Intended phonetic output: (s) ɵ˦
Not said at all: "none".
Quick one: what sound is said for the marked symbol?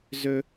z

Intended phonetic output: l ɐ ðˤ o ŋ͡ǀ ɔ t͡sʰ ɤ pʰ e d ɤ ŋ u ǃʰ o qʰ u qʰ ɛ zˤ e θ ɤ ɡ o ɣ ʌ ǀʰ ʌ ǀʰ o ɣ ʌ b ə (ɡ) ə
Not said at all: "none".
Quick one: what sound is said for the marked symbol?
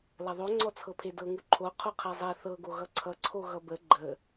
ɡ͡ǃ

